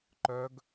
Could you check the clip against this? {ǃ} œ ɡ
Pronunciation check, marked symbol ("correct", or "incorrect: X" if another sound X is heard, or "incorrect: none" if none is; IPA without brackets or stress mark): correct